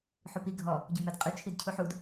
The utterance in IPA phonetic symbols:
ħ u p i ɡʱ ɔ | ɟ u m ɛ d qʼ ʉ t͡ʃʰ i d cʰ u ħ u d

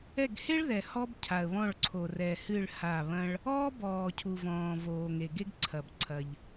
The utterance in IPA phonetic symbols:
ɛ˦˨ ɡ h e˥ ɭ ð ɛ˨ h ɔ˥ b cʰ a˨ ə̯ β ɔ̃˦˨ ɭ ǀʰ o˨ r ɛ˨ h ɨ˦˨ ɭ h a˦˨ β ɐ̃˥ ɭ | ɔː˥ b ɔː˨ cʰ u˨ v ɔ̃ː˨ v oː˨ ŋ e˨ ɡ e˥ ɡ ǀʰ ɐ˨ b ǀʰ ɐ˨ ʎ

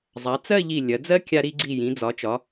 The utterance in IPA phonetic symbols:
zˤ a˩˧ t͡s ɜ˥˧ ʎ i˧˩ lʲ ɐ˩˧ d͡z ɜ˥ kʲ a˧ ɾ i˧ ɡ͡ǀ i˧˩ j ĩ˩˧ d͡z ɒ˩˧ t͡ʃ ɒ˩˧

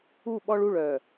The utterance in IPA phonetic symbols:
u˦˨ ɓ ɔ˦ ɭ u˦˨ ɭ œ˨

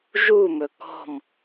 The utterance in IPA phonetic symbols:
ʒ u m ɵ k ɔ̤ m

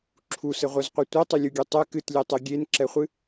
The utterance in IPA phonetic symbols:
ǁʰ u s ɘ ʁʷ œ z qʷ ɛ tʷ e tˤ ɨ lʲ u ɡʲ e tˤ ɛ k ɨ t lʲ e tˤ e ɡʲ e n ǁ ɛ χʷ ɨ

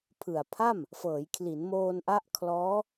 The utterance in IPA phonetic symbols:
pʰ ɯ˨˩ a̯ pʰ a˥˩ m | f ɤː˩˦ j kʰ l i˩˦ n m oː˧ n ʔ a˥˩ ʔ kʰ l ɔː˦˥

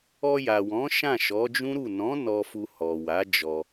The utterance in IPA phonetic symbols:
ɔ˧ j a˨ w ɔ̃˨˦ ʃ ã˦˨ ʃ ɔ˨˦ d͡ʒ ũ˦ ɾ u˦˨ n ɔ̃˨˦ n ɔ˧ f u˧ h ɔ˨ w a˨˦ d͡ʒ ɔ˧

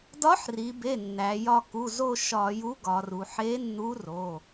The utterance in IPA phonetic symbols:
d ɒ˧˥ ħ r i˩˧ b e˩˧˩ nː æ˩˧ j ɒ˦˨ k u˩˧˩ z o˦˨ ʃ ɒ˧˩˧ j u˧˥ ɡ ɒ˩˧ r u˩˧ ħ e˧˥ nː u˧˥ r o˩˧˩

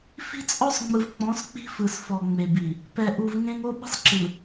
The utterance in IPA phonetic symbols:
f i̤˦ t͡sʼ ɔ˦ sˤ ŋ͡m ɯ˨ v k͡p ɔ̃˨˦ s k͡p i̤˦ f ɯ˨ s f ɔ˨ ŋ͡m e˨ b i˨ | p ɛ˨ ʔ u˨ v ŋ ẽ˦ ŋ o˦ ɓ i̤˦ sˤ ǁ ɯ˨

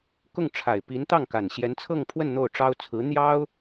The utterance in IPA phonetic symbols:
k ʊ˥˩ ŋ ʈ͡ʂʰ a˨˩ ɪ̯ p i˧˥ n t̪ ɑ˥˩ ŋ k a˨˩ n ɕ j ɛ˧˥ n t͡sʰ ɤ˥˧ ŋ pʰ w ə˥˧ n n̪ o˥˩ ʊ̯ ʈ͡ʂ ɑ˥ ʊ̯ t͡sʰ ɹ̩˧˥ n̪ j ɑ˥ ʊ̯

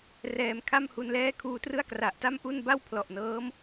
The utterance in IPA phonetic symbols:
r ɛː˨˩ m kʰ a˥˩ m h u˧ n l ɛː˥˩ kʰ uː˧ t r ɯ˥˩ a̯ k r a˨˩ ʔ t a˥˩ m ʔ u˥˩ n b a˥˩ w pʰ l ɔ˨˩ ʔ n ɤː˦˥ m

